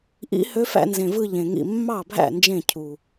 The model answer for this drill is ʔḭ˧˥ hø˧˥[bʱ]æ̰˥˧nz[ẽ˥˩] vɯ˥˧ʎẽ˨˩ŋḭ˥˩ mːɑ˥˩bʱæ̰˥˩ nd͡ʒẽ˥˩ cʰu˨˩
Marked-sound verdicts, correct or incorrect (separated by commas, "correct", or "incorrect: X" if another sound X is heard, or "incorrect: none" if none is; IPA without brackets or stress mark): incorrect: f, incorrect: ẽ˨˩